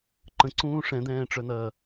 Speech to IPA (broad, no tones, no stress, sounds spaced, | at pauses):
ǃ ə̃ ǀ ũː ʂ ɛ̃ d̪ ɛ̃ː ʈ͡ʂ œ n̪ ɐː